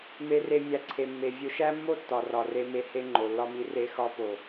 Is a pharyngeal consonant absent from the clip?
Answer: yes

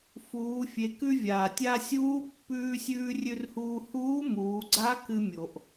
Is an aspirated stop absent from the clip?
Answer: yes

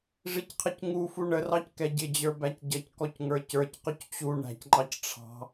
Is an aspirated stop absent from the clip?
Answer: no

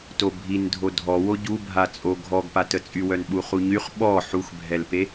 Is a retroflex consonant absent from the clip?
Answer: yes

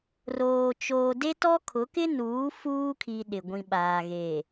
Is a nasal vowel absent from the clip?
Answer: no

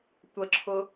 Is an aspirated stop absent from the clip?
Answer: no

